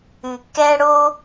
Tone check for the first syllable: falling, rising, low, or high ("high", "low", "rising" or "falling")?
low